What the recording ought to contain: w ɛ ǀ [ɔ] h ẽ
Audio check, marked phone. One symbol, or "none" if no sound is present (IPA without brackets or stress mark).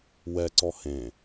ɔ